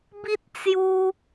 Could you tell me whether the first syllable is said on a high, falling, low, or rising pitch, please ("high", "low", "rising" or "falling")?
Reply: high